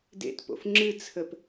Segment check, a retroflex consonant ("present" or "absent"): absent